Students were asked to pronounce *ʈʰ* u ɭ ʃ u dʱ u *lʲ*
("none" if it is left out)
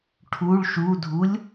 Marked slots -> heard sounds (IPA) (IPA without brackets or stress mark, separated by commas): ʈʰ, lʲ